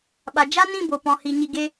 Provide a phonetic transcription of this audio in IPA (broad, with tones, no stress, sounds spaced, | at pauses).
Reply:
ɓ a˨ d͡ʒ a˦ n ĩ˦˨ b o˨ p ɔ̃˨ h i˨ ɲ i˧ ɡ e˦